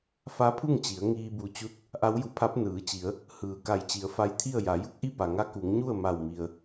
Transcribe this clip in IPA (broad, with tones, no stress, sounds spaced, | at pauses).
f a˧˥ pʰ u˥˨ ŋ t͡ɕ i˩˧ ə̯ ŋ iː˧ b u˧˩ t͡ɕ u˧˥ t̚ | ʔ a˧˥ w j u˧˩ pʰ a˧˥ p̚ n ɯː˩˧ t͡ɕ i˩˧ ə̯ | h ɯː˩ k a˧˩ j t͡ɕ i˩˧ ə̯ f a˧ j t̪ʰ i˥˨ ə̯ j a˩˧ j u˧˥ k̚ ʔ i˥˨ p a˩ ŋ a˧˥ k u˩˧ ŋ ɲ u˥˨ ə̯ m a˧˩ w m i˩ ə̯